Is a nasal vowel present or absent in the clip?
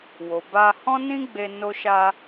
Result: present